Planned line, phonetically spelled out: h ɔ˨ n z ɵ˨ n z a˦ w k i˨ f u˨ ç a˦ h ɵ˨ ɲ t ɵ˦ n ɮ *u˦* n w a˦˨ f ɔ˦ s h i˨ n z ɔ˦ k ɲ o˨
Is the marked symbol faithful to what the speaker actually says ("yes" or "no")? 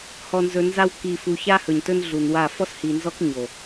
no